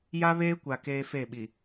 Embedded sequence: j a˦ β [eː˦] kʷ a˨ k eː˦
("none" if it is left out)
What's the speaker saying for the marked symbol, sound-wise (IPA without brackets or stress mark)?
eː˦